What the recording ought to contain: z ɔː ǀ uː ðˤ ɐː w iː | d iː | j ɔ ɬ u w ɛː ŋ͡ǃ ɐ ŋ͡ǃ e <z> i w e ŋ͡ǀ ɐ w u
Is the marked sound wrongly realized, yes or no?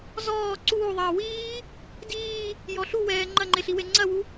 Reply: yes